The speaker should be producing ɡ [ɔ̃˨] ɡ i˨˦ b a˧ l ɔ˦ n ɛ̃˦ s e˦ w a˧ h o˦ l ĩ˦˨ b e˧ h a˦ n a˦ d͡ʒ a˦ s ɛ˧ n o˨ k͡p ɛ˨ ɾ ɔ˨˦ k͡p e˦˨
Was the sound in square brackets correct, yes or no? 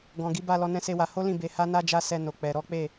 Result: yes